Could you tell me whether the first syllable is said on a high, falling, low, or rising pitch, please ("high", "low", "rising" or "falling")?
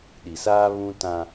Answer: low